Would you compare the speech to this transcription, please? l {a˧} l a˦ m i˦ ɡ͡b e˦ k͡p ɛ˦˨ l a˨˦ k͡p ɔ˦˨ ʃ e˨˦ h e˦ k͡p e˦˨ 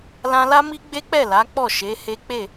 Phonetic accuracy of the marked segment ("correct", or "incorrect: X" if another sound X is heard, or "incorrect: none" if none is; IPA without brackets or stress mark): incorrect: ã˧